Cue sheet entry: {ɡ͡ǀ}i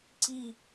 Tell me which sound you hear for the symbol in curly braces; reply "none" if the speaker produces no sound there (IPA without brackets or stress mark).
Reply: ǀ